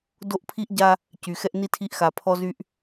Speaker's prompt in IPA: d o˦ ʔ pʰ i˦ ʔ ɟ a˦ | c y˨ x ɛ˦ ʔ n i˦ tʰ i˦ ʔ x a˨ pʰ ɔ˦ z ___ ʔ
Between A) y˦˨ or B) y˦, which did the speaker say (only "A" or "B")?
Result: B